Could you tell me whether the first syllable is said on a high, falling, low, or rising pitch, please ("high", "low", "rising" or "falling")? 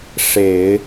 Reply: low